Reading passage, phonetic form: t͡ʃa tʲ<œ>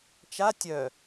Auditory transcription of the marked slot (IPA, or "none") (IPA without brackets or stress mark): œ